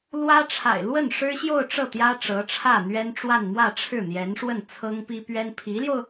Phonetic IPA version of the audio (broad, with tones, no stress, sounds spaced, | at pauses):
l w ä˥ ʈ͡ʂʰ a̰˨˩ ɪ̯ l w ə˥˩ n ʂ ɻ̩˥ ɕ j o˥˧ ʊ̯ ʈ͡ʂ ɤ˥˩ t̪ j ä˥ ʈ͡ʂ ɤ˧˥ ʈ͡ʂʰ ä˥˩ n̪ ɥ ɛ˥ n ʈ͡ʂ w a˥˧ n m w ä˥˧ ʈ͡ʂʰ ɻ̩˥˩ n̪ j ɛ˧˥ n ʂ w ə˥˩ n t͡sʰ ɤ˥ ŋ p i˥ p ɥ ɛ˥ n pʰ i˧˥ l j o˧ ʊ̯